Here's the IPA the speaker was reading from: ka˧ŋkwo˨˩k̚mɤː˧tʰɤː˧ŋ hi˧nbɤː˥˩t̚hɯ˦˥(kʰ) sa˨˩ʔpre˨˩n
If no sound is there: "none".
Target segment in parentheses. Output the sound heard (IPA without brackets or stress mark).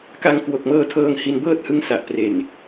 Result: ŋ